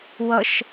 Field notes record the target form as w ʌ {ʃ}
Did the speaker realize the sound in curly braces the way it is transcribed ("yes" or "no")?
yes